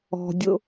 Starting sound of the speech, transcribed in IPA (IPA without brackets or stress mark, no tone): ɔ̤